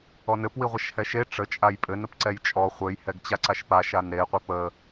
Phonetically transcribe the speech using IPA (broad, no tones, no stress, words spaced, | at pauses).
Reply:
ɔnɘp wiʁʷaʃhɛʃe ʈ͡ʂə t͡ʃʼajpʼɘn əpǀɛjt͡ʃʼɔ χʷɘj hɛɡt͡ɕaǀaʃpa ʃanɾe qʷɛpə